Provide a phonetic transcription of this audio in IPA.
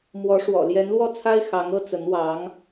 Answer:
mwɔ˧˥ʂwɔ̰˨˩ ljɛ˧˥nlwɔ˥˩t͡sʰa˥ɪ̯ xɑ˧˥ŋɤ˥ t͡sə˧˥nwɑ˧˥ŋ

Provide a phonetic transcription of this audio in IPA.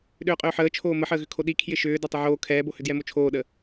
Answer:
ɗʏːqʼʏːħəːt͡ʃʰoː məħəːɣʏ kʰoɗi kʰjɪʃʏː dɛtˤɪʕoː kʰɛːbohʏ djɛmot͡ʃʰoːɗə

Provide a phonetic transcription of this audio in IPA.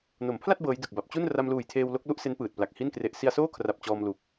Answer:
no˩˦mpʰla˥˩t̚ bɤː˦˥jdɯ˨˩k̚ ba˨˩p̚ t͡ɕu˥˩n ra˧mluː˨˩jtʰeː˧w lo˦˥k̚lu˥˩ʔse˦˥n pɯː˨˩t̚ pla˨˩k̚ hi˥˩nkre˦˥ʔ si˧a̯soː˥˩kʰra˨˩p̚ t͡ɕɔː˧mlu˨˩k̚

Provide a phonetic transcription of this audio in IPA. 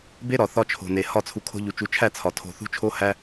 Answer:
be˦ ɾɒ˨ θɒ˦t͡ʃʰo̤˨ne˨ hɒ˦˨t͡sʰu˨ kʰo̤˦ʎu˨ t͡ʃu˨˦t͡ʃʰæ˦˨ t͡sʰɒ˨tʰo̤˦˨ θṳ˦t͡ʃʰo˦hæ˦

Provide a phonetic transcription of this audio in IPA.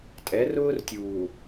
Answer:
tʼɛ˨˦rʊː˦r tʲuː˨

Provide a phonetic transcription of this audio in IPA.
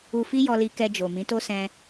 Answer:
u˧fi˦ jɔ˧li˧ kɛ˧d͡ʒo˨ mĩ˨˦to˦sɛ̃˧

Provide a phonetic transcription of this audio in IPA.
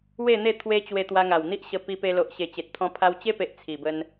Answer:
we˥˧n̪e˥˧ t̪ʰwe˧ t͡ɕwe˧ t̪wa˧ŋa˨˩wn̪i˦ʔɕə˧ pi˧pe˧lo˨ʔ ɕe˨˩t͡ɕe˨t̚t̪ʰɔ̃˧pʰa˧w t͡ɕe˦pe˨ʔ t͡sʰi˨˩bə˧n

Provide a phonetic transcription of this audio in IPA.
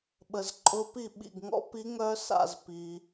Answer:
ɓə˨zǃʼʊ˧˥pi˥˩ ɓḭ˥˩ɡŋɔ̰˥ pi˧˥ŋœ˧˥ sa̰˥˩zpi˨

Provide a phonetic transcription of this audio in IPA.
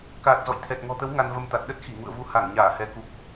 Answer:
kaː˨˩t̚zɔ̰˧˨jt̪ʰɛ˨˩t̚ ŋɔ̤˨˩t̪ə˨˦w ŋa˧nvə˧mt̪a˨˩t̚ ɗə˦˥t̚xi˧˩ŋṵ˧˨ə̯vu˨˦ ha˧˩ŋɲaː˧˩ hɛ˨˦ku˨˩k̚

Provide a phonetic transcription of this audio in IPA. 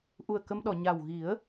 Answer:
ʔu˨˩ə̯kə˧mɗɔ˨˩˨ ɲa˨˩w ɣi˨˩˦ə̯

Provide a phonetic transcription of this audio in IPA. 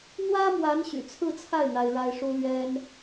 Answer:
n̪wä˥mwa˧˥n ɕy̰˨˩t͡sʰɹ̩˥˧t͡sʰa˥˩ɪ̯ n̪a˥ɪ̯ɻa˥ɪ̯ ʂu˥ lɥɛ˥n

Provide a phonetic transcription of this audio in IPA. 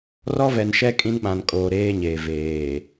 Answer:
rɔ˦vɛ˨nʃɛ˦ kʼĩ˦nɓã˨nkʼoː˨ ɾeː˦ ɲeː˨veː˨

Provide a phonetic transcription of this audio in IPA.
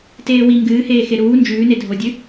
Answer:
teːwi ŋɡɨːheː xeɾuː nd͡ʒʉːne dʱodʲɨ

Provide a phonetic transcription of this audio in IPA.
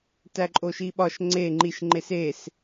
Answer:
tæǃʼoʃiɓɒʃ ŋ͡ǀe ŋ͡ǃiʃ ŋ͡ǃeses

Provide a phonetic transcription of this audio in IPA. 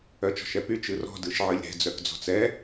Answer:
œt͡ʃɔ̤ʃɛpy t͡ʃɯrɔ̤ dɯʃʕɯlʲɾɛ̤ d͡zœkd͡zɔ̤t͡sɛ

